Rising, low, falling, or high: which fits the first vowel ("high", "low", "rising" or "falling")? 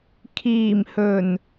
low